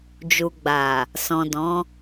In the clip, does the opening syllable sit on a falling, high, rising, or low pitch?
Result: low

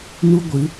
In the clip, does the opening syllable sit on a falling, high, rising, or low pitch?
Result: high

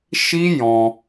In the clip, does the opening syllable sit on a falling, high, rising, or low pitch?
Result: high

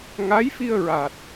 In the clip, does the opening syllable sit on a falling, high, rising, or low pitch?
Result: rising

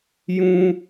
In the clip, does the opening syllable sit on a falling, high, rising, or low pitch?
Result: high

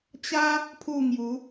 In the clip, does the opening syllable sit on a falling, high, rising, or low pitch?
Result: high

